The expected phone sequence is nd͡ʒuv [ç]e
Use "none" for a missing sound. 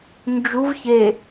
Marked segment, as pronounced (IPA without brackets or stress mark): ç